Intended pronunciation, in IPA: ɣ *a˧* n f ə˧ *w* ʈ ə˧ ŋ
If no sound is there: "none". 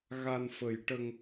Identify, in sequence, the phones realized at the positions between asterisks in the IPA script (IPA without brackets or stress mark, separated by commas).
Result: a˧, j